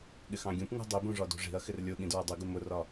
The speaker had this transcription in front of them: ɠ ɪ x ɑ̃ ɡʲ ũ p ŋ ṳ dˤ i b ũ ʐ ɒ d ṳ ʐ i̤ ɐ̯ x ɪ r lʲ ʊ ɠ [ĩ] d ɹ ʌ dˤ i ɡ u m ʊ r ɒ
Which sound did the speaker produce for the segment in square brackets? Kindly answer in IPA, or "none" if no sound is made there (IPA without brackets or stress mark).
ĩ